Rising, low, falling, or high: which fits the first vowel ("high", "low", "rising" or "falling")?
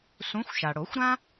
rising